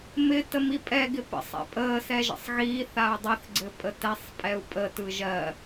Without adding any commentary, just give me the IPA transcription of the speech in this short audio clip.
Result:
m ɪ t ə m i pʼ ɛ ɡ ɪ p ə̰ sˤ ɛ̰ pʼ əː s ɛ ʒ ə̰ sˤ ɣ iː θ a u̯ dˤ ə θ ɡ͡ǀ ɘ pʼ ə t ɛ sˤ pʼ ɛ u̯ pʼ ə t ɯ ʒ ɜ

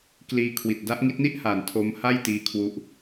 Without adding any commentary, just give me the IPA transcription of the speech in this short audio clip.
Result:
k l iː˧ kʰ w i˨˩ t̚ d a˦˥ ʔ ŋ i˦˥ t̚ n i˥˩ ʔ h aː˩˦ n tʰ o˦˥ m h a˥˩ j t iː˧ kʰ w u˦˥ ʔ

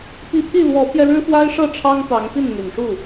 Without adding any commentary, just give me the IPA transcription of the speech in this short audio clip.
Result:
p i˥˧ pʰ i˥˩ l w ɔ˧˥ pʰ j ɛ˧ ɻ ɻ̩˥ f w a˥ ɪ̯ ʂ ɤ˥˩ ʈ͡ʂʰ ɑ˥ ŋ t̪ ɑ˧˥ ŋ p i˥˩ n m y˨˩ n ʂ u˥˩

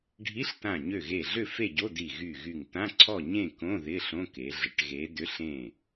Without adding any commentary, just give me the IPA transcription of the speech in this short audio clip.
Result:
ɖʱ i˧˥˧ ɬ t ã˧˩ ɲ ø˧˩ ɣ e˧˩ ɮ ʏ˥˨ f e˥˨ ɟ o˧˥˧ d i˧˩ ɣ y˧˩ ɣ y˧˩ ŋ t ã˧˥˧ ǀʰ ɔ˥˨ ɲ ẽ˥˨ k õ˧˥˧ ð ɪ˧˥˧ ɬ õ˧˥˧ k e˨˦ ɮ ɪ˨˦ ʈ ɣ e˨˦ d ʏ˧˥˧ ɬ ẽ˥˨

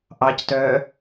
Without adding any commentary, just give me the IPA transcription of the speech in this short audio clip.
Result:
ʔ ɑ c t œː

